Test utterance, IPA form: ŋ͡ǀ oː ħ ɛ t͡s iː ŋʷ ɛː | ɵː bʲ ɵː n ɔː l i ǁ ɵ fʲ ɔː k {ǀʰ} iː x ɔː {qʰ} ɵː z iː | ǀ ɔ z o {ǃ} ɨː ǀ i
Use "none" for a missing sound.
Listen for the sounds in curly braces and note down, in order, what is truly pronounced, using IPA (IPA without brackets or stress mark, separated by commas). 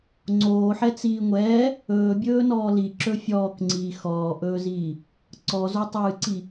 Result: ŋ͡ǀ, ʔ, tˤ